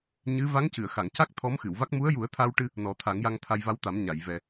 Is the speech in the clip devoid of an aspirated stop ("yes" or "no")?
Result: no